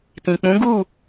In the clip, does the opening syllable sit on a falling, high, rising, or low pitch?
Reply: low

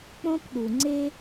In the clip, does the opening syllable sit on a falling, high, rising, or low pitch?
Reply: high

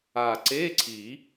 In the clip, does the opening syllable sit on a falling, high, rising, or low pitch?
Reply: low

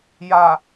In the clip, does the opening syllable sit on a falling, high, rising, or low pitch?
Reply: low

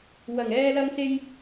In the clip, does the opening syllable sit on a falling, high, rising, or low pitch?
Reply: low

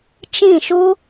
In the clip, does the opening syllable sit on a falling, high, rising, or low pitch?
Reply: falling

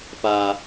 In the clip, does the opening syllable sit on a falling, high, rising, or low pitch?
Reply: low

